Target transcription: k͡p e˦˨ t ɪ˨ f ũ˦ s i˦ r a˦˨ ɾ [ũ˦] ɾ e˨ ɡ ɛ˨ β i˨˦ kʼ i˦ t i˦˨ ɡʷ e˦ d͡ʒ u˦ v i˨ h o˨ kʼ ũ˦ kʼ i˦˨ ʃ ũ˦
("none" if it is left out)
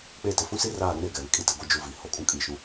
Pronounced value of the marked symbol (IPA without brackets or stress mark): ũ˦